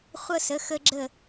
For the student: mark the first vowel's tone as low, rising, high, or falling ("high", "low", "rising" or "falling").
high